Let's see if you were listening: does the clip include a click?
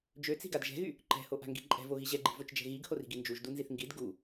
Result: yes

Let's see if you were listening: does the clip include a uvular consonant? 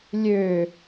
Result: no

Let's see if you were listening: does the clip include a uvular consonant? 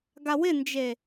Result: no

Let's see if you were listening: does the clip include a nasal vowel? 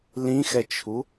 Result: yes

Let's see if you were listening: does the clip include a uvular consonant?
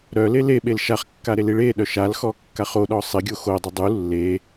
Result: yes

